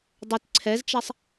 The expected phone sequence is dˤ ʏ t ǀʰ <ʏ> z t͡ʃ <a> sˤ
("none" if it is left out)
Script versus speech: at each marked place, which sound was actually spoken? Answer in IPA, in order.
ɛ, a

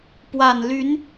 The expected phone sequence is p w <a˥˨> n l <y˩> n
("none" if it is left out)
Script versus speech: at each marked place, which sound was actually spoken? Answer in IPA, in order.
a˨˩, y˨˦

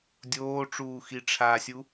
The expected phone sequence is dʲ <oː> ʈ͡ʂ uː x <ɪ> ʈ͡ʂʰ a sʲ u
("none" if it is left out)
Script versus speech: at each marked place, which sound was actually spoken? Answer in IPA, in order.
oː, i

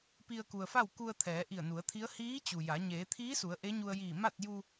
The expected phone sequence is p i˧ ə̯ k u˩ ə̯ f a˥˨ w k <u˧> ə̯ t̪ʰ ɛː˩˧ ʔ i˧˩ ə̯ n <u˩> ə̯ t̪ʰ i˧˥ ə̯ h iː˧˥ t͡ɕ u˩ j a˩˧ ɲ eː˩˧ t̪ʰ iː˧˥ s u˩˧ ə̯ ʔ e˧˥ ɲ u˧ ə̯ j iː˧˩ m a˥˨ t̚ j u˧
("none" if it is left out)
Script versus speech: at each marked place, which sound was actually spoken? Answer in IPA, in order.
u˧, u˩˧

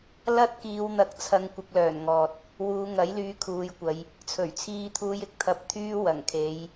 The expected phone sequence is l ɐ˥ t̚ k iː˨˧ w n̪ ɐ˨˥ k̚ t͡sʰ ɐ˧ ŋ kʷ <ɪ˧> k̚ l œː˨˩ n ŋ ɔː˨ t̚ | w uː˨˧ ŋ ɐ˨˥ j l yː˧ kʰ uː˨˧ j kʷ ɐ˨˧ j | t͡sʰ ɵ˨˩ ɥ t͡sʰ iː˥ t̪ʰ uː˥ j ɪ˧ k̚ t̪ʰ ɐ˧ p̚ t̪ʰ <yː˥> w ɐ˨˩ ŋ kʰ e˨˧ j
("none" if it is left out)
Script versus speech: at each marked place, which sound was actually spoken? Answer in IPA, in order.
ɪ˧, yː˥

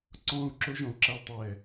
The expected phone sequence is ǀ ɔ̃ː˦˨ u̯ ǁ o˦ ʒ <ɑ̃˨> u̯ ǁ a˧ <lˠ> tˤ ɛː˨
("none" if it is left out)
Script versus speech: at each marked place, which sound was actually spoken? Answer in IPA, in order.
ɔ̃˨, lˠ

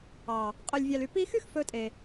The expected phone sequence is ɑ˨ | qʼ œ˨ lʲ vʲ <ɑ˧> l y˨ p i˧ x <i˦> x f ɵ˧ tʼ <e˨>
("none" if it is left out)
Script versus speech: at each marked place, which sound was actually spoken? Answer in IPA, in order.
ɑ˨, y˦, e˨

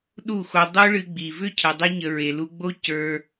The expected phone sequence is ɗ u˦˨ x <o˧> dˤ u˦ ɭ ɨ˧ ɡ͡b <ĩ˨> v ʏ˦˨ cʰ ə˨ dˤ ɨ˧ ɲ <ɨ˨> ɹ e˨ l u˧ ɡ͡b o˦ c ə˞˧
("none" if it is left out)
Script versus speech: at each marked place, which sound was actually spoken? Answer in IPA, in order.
o˧, i˨, ə˨

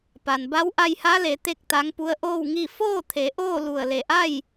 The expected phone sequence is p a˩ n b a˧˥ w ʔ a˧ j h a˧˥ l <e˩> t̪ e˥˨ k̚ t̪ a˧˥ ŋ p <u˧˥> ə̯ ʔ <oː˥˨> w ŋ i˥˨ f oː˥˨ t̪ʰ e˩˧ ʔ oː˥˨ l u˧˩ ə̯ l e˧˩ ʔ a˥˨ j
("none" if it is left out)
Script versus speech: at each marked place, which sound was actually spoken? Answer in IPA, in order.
e˩˧, u˧˥, oː˥˨

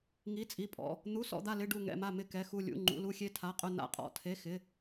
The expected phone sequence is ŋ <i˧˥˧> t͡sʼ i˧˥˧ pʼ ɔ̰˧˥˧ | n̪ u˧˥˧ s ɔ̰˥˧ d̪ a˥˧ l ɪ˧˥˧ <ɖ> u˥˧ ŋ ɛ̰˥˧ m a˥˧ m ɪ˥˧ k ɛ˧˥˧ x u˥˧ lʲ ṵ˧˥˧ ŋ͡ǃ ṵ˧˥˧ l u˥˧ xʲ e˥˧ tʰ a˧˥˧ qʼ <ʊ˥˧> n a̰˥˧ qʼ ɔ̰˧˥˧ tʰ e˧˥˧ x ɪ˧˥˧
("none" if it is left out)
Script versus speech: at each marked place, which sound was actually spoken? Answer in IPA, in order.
i˧˥˧, ɖ, ʊ˥˧

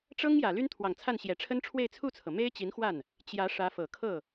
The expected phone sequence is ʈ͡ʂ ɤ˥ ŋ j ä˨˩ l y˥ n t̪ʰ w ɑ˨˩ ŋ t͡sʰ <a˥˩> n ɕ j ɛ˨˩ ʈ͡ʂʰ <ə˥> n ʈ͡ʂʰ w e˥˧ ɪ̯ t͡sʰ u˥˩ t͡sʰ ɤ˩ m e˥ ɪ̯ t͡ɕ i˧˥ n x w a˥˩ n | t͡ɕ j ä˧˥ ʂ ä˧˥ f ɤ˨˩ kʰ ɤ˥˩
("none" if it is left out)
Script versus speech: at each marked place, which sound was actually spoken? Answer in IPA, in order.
a˥˩, ə˥

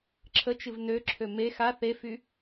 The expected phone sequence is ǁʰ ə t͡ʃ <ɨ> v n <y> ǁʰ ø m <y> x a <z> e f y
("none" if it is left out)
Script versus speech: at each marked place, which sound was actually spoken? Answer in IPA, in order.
ɨ, ø, e, θ

